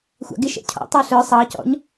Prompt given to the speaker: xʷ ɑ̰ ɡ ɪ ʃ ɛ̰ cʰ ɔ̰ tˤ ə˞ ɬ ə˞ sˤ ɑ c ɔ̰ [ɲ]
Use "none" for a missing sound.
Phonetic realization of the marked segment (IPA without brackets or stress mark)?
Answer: ɲ